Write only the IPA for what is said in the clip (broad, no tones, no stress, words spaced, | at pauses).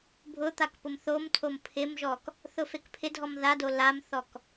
bʱʊt̪ak pʊmθomtʰom pʰɪmʒɔk | θʊfekpʰɪdʱɔm ðado lamθɔk